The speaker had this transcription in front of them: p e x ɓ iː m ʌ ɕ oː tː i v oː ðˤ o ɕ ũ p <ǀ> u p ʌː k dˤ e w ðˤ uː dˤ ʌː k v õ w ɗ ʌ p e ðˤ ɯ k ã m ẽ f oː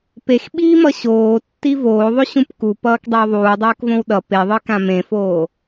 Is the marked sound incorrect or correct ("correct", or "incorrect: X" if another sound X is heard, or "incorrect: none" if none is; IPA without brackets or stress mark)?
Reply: incorrect: k